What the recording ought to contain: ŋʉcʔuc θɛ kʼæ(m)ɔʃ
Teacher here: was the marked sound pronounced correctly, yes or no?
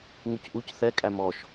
yes